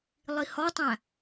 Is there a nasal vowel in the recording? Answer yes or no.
yes